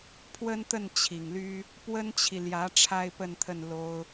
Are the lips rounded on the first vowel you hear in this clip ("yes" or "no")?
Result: no